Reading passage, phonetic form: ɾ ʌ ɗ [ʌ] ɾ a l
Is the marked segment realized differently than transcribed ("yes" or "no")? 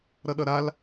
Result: no